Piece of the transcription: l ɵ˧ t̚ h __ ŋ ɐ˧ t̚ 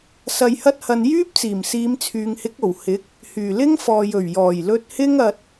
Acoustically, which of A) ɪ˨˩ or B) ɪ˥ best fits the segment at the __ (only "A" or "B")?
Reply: B